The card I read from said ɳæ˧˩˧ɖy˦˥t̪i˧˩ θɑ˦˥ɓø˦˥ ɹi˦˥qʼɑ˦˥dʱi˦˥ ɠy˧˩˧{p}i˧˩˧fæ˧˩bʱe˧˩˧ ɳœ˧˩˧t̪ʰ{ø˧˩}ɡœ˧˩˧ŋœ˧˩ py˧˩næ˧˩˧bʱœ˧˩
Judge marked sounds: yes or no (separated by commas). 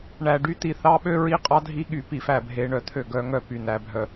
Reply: yes, yes